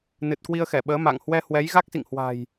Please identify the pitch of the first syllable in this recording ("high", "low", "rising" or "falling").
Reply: low